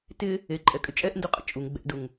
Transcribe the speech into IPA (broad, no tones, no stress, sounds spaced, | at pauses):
t ɪ | e ǃʼ ɛ kʼ ʏ t͡ʃʼ ɛ ʔ n d u qʼ ə̰ t͡ʃʼ u ŋ ɡ͡b ɛ̰ d ʊ ŋ